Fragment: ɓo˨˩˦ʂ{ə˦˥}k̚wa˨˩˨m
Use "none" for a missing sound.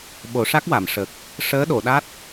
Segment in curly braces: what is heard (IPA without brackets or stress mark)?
a˦˥